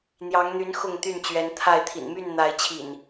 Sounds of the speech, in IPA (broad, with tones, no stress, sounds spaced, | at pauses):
n̪ j ɑ˨˦ ŋ n̪ y˨˦ n x ʊ˥˨ ŋ t̪ y˥˨ n t͡ɕ ɥ ɛ˨˦ n t̪ʰ a˥˨ ɪ̯ t̪ʰ ḭ˨˩ n m y˥˨ n n̪ a˨˦ ɪ̯ t͡ɕʰ ḭ˨˩ n